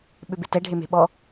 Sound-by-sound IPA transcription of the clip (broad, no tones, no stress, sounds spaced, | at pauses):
ɓ ʏ b ɪ t ɛ ɖʱ e m e̤ ɓ ɔ